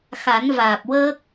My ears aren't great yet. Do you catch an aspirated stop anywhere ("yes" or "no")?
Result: no